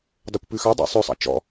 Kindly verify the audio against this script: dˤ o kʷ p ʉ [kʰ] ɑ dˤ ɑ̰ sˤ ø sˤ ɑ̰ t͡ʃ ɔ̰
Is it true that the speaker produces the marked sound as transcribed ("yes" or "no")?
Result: no